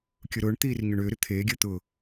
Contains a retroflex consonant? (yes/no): yes